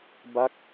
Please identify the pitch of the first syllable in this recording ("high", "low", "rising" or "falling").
falling